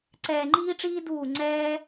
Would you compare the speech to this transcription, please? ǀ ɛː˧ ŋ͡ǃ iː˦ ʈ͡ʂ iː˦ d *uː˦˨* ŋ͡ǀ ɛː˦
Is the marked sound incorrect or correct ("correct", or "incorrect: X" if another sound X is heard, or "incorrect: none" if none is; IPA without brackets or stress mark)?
correct